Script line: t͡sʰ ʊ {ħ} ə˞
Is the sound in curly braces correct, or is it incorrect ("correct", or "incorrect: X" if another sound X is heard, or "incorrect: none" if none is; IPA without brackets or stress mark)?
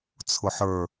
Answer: correct